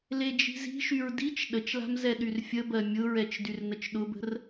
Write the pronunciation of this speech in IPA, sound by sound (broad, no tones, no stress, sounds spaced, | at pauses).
l e d͡ʒ i̤ z i̤ ʃ y ɹ d i t͡ʃ ɗ ə t͡ʃ l a̤ m z ɛ ɗ y r fʲ ə b ɜ mʲ ʊ ɹ ɛ t͡ʃ d y r n ə t͡ʃ ɗ ʊ b ə̤ r